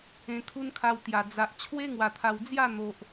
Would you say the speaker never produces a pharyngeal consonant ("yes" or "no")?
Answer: yes